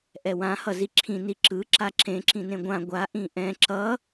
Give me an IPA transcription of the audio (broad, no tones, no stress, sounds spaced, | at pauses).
ʔ ɛ w ã h ʌ z i ǁʰ ĩ n i ǁ ɯ ǁ a ǁ ẽ ǁ ĩ n ẽ ɡʷ ã ɡʷ a ʔ ĩ ʔ ɛ̃ ǁ ʌ